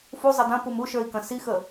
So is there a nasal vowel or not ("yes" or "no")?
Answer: yes